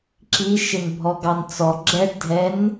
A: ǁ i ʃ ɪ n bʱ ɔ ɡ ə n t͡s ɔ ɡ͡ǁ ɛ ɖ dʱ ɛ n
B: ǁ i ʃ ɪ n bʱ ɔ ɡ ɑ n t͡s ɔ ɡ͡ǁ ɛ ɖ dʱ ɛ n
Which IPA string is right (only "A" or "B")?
B